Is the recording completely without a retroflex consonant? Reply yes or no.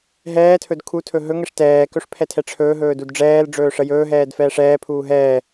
no